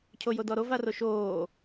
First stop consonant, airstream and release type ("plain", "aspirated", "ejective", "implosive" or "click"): aspirated